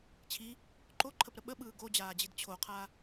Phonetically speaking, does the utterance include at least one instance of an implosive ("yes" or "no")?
yes